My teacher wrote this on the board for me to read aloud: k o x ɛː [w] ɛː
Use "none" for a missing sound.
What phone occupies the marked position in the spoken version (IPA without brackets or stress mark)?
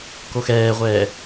ʁʷ